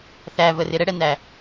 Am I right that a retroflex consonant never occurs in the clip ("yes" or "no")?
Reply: no